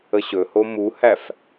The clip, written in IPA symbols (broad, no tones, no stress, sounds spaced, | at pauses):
ə ɕ ɵ h o m u h æ f